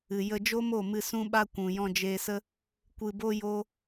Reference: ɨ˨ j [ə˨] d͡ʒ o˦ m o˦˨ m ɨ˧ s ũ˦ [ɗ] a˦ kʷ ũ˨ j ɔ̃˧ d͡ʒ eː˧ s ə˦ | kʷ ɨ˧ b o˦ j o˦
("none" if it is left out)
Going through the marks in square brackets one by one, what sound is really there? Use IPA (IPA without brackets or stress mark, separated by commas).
ə˧, ɓ